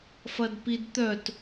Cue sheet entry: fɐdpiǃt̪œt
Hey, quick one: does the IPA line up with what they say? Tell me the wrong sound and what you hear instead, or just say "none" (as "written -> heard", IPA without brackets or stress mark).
ǃ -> d